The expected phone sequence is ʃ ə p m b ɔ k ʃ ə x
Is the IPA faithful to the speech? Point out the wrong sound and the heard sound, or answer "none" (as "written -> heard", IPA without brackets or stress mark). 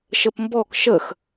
none